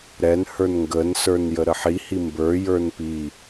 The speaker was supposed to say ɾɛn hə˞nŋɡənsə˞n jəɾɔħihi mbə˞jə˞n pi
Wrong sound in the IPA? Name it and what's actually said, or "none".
ɔ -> ə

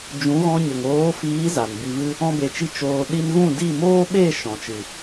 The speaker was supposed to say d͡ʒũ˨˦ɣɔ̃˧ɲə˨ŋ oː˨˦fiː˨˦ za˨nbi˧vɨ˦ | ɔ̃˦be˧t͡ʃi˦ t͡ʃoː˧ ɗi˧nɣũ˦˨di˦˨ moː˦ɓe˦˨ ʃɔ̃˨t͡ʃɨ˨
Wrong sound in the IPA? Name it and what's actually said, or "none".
none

